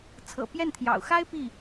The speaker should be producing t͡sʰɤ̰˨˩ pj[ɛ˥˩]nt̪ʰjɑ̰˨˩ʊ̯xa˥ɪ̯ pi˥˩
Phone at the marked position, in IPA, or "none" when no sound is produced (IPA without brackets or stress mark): ɛ˥˩